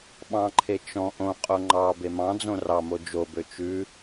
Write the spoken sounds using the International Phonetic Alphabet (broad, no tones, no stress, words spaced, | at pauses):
ɓɑ̃ǃʰe t͡ʃɔ̃ ʔõqʼo ŋ͡ǃɑ bemɑ̃d͡zõ rɑmo d͡ʒobø t͡ʃʉ